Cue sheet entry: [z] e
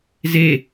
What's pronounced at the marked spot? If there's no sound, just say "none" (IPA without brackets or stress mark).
z